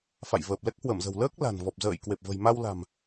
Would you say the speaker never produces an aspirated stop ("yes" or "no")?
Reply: yes